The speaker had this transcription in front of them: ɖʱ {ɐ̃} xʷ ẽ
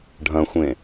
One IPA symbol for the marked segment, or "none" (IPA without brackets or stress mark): ɐ̃